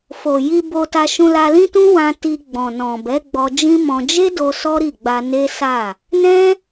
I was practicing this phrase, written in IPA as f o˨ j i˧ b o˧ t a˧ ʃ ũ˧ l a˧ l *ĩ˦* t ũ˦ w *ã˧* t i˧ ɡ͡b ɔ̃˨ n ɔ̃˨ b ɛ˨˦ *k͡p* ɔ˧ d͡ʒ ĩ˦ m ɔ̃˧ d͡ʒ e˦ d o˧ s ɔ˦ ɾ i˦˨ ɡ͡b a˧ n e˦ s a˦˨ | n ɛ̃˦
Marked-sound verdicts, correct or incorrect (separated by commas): correct, correct, incorrect